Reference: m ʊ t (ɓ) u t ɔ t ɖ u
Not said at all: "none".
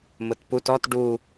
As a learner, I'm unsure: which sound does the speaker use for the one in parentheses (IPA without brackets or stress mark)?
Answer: p